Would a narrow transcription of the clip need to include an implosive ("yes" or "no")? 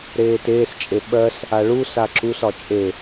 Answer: yes